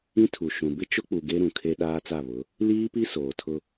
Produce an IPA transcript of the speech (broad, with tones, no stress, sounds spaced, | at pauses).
ĩ˦ tʰ u˨ ʃ ũ˨ b ɪ˦ t͡ʃ ʊ˦ k͡p u˨ ɡ e˦ ɾ ũ˨ kʰ e˦ ɗ aː˦ t͡s a˦˨ β ʊ˨˦ | l iː˦ p i˦ s oː˨ tʰ ʊ˦